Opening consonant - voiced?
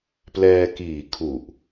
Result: no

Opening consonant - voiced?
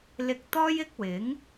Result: yes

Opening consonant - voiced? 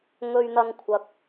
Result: yes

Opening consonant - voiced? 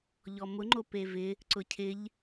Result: yes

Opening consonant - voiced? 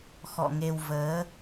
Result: no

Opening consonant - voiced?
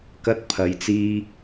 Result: no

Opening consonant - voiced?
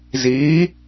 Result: yes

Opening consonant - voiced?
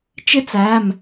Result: no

